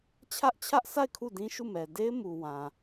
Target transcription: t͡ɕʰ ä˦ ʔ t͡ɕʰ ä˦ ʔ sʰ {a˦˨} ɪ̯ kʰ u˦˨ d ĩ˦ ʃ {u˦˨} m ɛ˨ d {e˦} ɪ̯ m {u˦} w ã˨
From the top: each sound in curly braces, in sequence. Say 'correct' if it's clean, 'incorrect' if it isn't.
correct, correct, correct, incorrect

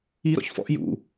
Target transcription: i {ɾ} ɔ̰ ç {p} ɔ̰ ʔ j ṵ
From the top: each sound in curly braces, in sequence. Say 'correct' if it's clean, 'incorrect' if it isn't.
correct, incorrect

